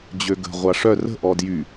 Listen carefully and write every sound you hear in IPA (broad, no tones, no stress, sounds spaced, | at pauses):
d͡ʑ ø ɡ ə̤ ʁʷ a ʂ œ r ə̤ ʔ ɔ d j y